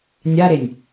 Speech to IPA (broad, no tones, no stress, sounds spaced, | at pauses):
nʲ a ɾ e nʲ